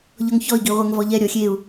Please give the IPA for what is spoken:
ʎ ɔ ŋ ç ɔ i̯ ɡ i ʁʷ ɛ ŋ v ɔ ʎ ɛ ɾʲ ɔ xʲ e u̯

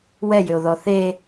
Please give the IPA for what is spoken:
w ɛ j ʏ o̯ ð ɔ θ e

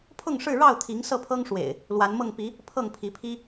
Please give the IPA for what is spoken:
pʰ ʊ˥˨ ŋ ʂ ɻ̩˥˨ ɻ ɑ˥˨ ʊ̯ t̪ʰ i˨˦ ŋ s ɤ˥˨ pʰ ɤ˦ ŋ ʂ w ḛ˨˩ ɪ̯ | l w a˨˦ n m ɤ˥˨ ŋ p i˨˦ | pʰ ɤ˥˨ ŋ pʰ i˨˦ pʰ i˦

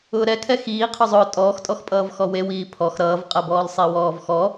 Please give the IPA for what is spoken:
ʊː ɾ ɛ kʰ ɛ x iː qʰ ʊ zˤ ʊː tʼ ɔː x tʼ ɔ x pʼ ʌː v x ɔ w e w iː pʰ ɔ x ɾ ʌː v qʼ ʌ b ɔː l sˤ i w ɔː v x ɔ

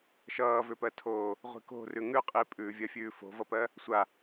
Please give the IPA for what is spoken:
ʃ ʌː v ʏ p ɜ tʰ oː | ʁʷ i̤ k o̤ r ʉ ŋ ʉ qʼ i pʼ ʉː vʲ ɜ fʲ ʉː f o̤ v ʌ p ɜ | sʷ a

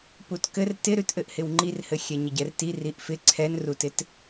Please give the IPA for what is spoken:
p u t k ɘ r t ɪ ɾ ʉ t ʔ ɘ ʔ h ɪ w ŋ͡ǃ i r h ɘ xʲ ɛ ɲ ɘ ɟ ɛ r t i r i ʔ f ɪ ǀʰ ɛ n r u t ɪ t

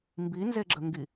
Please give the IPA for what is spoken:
m b i n z e ɡ͡ǁ ə ŋ ɡ i

